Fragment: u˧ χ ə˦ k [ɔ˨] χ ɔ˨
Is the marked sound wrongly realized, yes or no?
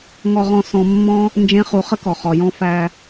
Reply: no